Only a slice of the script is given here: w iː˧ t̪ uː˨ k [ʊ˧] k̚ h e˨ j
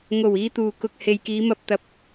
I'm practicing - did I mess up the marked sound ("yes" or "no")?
no